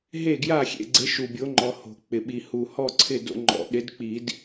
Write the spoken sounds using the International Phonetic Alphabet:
ɦ e˥˨ ɡ j a˥˨ xʲ ḛ˥˨ ɡ͡ǀ ɪ˨˥ ʃ u˨ bʲ o˨˥ ŋ͡ǃ ɔ˨ h o̤˨˩˦ k͡p ɪ˨ ɓ i˨ h u˨ h ɔ˥˨ ǀʰ ɪ˥˨ d o̰˦ ŋ͡ǃ ɔ̰˨˩˦ ɗ ɪ˨˥ d k͡p i˨˩˦ d

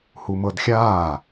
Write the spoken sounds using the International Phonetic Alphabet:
h u m ɤ d xʲ aː

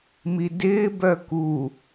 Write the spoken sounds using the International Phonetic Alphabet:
m i d ɪː b œ k u

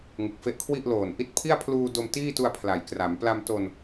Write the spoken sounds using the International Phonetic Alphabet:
ŋ ɯ˨˩ k̚ f e˦˥ ʔ kʰ w i˥˩ ʔ l oː˨˩ n ʔ i˥˩ t̚ pʰ i˥˩ a̯ pʰ l uː˧ d o˧ m t iː˥˩ t u˧ a̯ pʰ l a˩˦ j k r a˩˦ m p l a˧ m t o˧ n

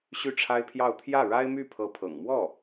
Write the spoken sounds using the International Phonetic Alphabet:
ɕ y˥˩ ʈ͡ʂʰ a˥ ɪ̯ pʰ j ɑ˥˧ ʊ̯ t̪ʰ j ä˥˩ ɻ a˥ ɪ̯ m y˥˩ pʰ ɤ˧˥ pʰ ɤ̰˨˩ ŋ m w ɔ˥˩

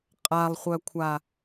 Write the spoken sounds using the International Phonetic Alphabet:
qʼ a lˠ χʷ œ kʷʰ a

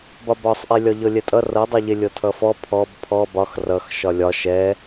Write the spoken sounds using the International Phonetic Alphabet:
b ɒ b ɒ sˤ ʔ e lʲ ɒ ʎ ɤ lʲ ɛ tʼ ʌ r ɤ dˤ ʌ ʎ e lʲ ɤ tʰ ʌ f ɔ pʰ ɔ b pʰ ɔ b ɒ x r ʌ x ʃ ɒ lʲ ɒ ʃ ɛ

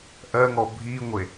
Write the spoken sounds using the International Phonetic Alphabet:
ʔ ɜ ŋ ɔ bʱ i ŋʷ e

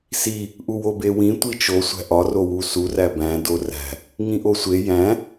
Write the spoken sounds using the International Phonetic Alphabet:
s i | ʔ u w o b e w ĩ tʷ i t͡ʃ o sʷ æ̤ ʔ ɒ r o w u s u r æ b æ̃ d o r æ̤ | ŋ ĩ ʔ o sʷ e j æ̃

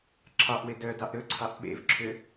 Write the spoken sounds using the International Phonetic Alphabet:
ǁʰ ɑ ʔ w e d œ d ɑ ʔ ɾ ɵ ǀʰ ɑ ʔ ɓ ḛ v ǁʰ ø

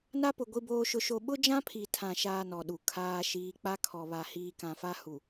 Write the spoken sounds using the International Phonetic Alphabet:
n a˦ p ʊ˨ ɡʷ i˦ b oː˦ ʃ ʊ˦ ʃ o˦ ɓ ʊ˦ d͡ʒ ã˦ pʰ i˨ tʰ ã˨ ʃ aː˦ n ɔ˨ ɗ u˨ kʰ aː˦ ʃ iː˦ k͡p a˦ kʰ ɔ˨ β a˨ h iː˨ k ã˨ f a˦ h u˨

